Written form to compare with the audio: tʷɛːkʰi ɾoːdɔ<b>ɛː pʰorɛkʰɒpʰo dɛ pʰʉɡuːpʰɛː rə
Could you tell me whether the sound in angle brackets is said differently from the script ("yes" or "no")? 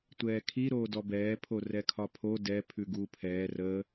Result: no